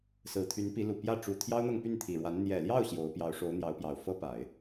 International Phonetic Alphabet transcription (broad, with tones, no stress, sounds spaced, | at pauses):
s ɹ̩˨˩ t̪ʰ y˧˥ n p i˧˥ l u˨˩ p j ä˥˩ ʈ͡ʂ u˨˩ t̪ʰ j ɑ˥ ʊ̯ n̪ ɤ˥˧ ŋ p y˥˩ n t̪ʰ i˨˩ ɻ w a˧˥ n n̪ j ɛ˨˩ l j ɑ˥˩ ʊ̯ ɕ j o˧˥ ʊ̯ p j ɑ˧˥ ʊ̯ ʂ o˧˥ ʊ̯ n̪ j ɑ˧˥ ʊ̯ p j ɑ˨˩ ʊ̯ f ɤ˥ p a˨˩˦ ɪ̯